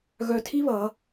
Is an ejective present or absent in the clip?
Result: absent